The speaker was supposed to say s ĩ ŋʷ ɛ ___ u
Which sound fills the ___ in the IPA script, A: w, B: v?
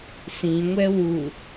A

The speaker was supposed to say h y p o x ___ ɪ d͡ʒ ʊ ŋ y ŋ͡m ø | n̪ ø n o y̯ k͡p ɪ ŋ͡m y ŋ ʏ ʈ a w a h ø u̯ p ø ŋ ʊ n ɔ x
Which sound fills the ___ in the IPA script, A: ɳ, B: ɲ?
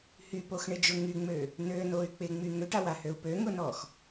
A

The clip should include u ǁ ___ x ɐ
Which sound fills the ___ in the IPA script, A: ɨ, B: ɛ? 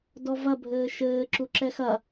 B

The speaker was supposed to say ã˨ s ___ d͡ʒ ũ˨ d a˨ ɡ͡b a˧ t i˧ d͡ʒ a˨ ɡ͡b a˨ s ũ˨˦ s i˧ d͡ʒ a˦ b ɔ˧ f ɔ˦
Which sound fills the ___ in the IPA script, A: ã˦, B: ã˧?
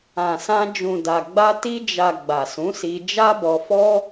B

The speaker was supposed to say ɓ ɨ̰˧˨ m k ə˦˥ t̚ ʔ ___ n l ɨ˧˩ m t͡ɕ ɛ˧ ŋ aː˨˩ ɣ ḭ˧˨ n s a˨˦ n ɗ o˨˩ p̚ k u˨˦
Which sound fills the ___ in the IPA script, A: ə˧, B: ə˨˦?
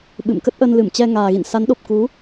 A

